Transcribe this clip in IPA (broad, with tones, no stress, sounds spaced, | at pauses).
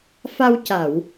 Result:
f a˧ w c a˨˩˨ w